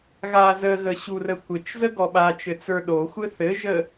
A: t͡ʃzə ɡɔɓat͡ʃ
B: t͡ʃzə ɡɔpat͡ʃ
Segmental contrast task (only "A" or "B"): A